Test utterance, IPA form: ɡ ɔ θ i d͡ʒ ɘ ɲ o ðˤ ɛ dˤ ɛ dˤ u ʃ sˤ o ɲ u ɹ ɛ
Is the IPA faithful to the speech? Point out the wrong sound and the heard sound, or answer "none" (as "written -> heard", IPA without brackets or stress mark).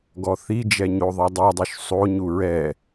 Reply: ɘ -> ɛ